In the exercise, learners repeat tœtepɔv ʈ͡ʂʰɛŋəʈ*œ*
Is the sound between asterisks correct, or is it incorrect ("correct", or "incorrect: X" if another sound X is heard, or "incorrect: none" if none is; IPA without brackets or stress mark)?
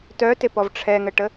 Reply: incorrect: ə